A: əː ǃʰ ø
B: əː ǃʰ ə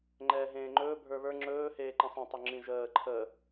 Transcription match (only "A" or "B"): B